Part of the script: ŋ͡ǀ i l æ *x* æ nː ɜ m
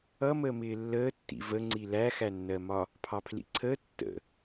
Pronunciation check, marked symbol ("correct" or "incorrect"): correct